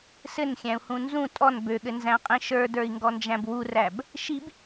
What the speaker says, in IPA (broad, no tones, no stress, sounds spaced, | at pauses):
s ɘ n xʲ æ̃ u̯ h ũ n z ũ tʼ ɔ n b ø ɠ ɘ n z æ̃ qʼ ĩ ʃ ə˞ d ə˞ i̯ ŋ ɡ ɔ n d͡ʒ æ̃ b w u r æ b | ʃ i b